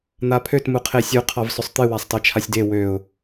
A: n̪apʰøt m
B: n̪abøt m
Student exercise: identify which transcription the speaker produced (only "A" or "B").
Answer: A